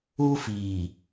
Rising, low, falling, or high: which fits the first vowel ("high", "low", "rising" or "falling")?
high